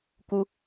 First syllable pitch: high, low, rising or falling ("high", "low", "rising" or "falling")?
low